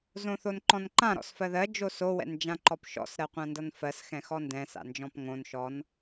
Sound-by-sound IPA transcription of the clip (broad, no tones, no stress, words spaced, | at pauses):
zõθonǃɔ̃nǃã ɾɔ̰sfɜðɜ d͡ʒoso wɛ̰nd͡ʒãǃɔpʃɔ̰s ɾɜqʷãndʌnfɜs xɛ̃xɔndɛ̃ sa̰nd͡ʒɔ̃pŋõn ʃɔn